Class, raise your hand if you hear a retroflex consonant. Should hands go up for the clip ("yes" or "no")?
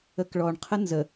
yes